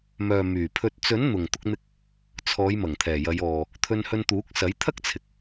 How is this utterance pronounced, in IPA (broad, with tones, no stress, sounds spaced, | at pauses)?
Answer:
m œː˨ m yː˨˩ pʰ ɵ˨ t̚ t͡s ɵ˨˥ n n̪ ʊ˨˩ ŋ t̪ ʊ˧ k̚ n̪ ɪ˧ k̚ | t͡sʰ ɔː˨˧ j m ɐ˨˩ ŋ t̪ʰ ɛː˨˩ j ɐ˨˧ j ɔː˨ | t̪ʰ ɵ˧ n h ɵ˧ n t̪ uː˨˥ k̚ s ɐ˨˥ j t̪ʰ ɐ˥ k̚ t͡sʰ ɪ˨ k̚